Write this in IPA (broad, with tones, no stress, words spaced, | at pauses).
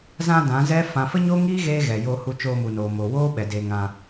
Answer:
zã˧ dã˨˦zɛ˦ fã˨fə˦ɲo˦ŋiː˦ ɣeː˦ɣɛ˨jo˧ hu˧t͡ʃoː˧mu˨noː˨ mo˨woː˦ɓɛ˨ de˨ ŋã˧